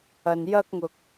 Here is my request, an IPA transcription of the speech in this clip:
ɐ˨njɐ˧k̚ŋʊ˨k̚

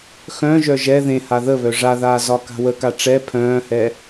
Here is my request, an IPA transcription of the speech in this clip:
xœ̃ʒœ ʒɛ ðẽha ðəβœ ʐaðaː zɒka̤wəka ʈ͡ʂɛ pʰœ̃ːhɛ

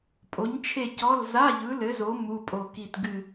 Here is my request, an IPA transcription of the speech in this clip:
pʼo˨˦ɲt͡ʃʰe˦˨cɔ˧˥˧l za˧˥˧ʎɯ˨˦lɘ˨˦zo˨˦ mu˧˥˧pʼo˦˨ki˦˨t ɡɨ˦˨

